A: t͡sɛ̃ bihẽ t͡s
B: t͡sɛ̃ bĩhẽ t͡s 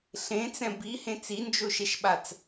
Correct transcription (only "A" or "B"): A